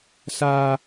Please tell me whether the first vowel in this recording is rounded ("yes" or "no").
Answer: no